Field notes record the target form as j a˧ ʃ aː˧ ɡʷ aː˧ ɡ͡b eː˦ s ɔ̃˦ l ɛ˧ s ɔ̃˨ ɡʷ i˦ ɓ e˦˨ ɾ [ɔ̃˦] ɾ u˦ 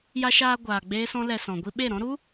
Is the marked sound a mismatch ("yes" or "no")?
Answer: no